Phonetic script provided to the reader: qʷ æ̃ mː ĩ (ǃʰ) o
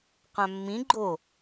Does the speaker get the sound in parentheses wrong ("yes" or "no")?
yes